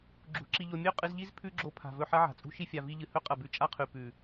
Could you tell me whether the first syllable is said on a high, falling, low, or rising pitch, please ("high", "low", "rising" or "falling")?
rising